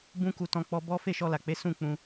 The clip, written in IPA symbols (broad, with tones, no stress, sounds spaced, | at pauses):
b ũ˦ k u˧ t ɔ̃˧ k͡p ɔ˧ b ɔ˦ f e˦˨ ʃ ɔ˧ l a˨ k͡p e˨˦ s ũ˦˨ k͡p ũ˧